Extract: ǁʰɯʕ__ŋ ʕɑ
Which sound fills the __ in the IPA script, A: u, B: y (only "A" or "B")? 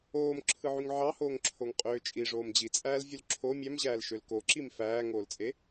B